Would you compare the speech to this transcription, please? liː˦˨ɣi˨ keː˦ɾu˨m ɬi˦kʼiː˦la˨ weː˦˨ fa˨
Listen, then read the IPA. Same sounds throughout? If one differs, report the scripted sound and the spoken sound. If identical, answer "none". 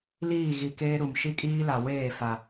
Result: ɬ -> ʃ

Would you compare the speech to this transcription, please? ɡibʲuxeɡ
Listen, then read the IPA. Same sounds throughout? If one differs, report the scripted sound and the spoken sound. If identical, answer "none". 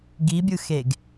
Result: u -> ɯ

